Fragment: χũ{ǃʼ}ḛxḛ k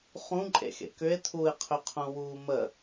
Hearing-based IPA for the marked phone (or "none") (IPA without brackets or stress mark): ǃʼ